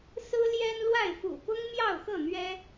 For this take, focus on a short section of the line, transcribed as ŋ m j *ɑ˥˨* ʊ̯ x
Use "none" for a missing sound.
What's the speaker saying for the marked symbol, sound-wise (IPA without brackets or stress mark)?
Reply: ɑ˥˨